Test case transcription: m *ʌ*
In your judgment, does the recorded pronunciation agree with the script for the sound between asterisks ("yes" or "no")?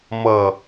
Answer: yes